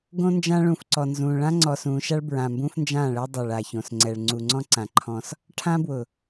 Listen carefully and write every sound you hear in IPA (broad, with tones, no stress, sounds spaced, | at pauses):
ɡ õ˦ n d͡ʒ ã˦ ɭ ũ˨ f ǀ ɔ˨ n z ũː˨ ɭ ã˦ ŋ͡ǀ ɔ˨ s ũː˨ ʃ a˦ ɭ b ɹ ã˨ m b ũː˦ f n d͡ʒ ãː˦˨ ɭ ɛ˦ dˤ a˨ ɭ a˨ ç õ˨ s ŋ͡ǀ ɛ˨ ɭ ŋ͡ǀ u˨ ŋ͡ǀ ɔ̃˦ ǀ ã˨ ǃʰ ɔ̃˦ s | ʈʰ ã˦ b w ʊ˨